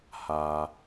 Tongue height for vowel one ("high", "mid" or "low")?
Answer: low